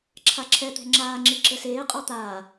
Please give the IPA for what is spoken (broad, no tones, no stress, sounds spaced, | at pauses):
ǁʰ a ǁʰ ɛ t̪ ɛ̤ ŋ͡ǁ aː ŋ͡ǁ i ǁ ɘ s eː qʼ ɔ t̪ aː